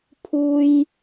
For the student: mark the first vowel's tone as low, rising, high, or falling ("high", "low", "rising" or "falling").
high